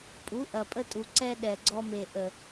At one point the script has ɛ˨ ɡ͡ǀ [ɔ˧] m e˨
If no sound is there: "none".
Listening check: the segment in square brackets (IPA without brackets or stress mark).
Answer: ɔ˧